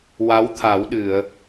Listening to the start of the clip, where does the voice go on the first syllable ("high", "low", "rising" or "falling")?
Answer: rising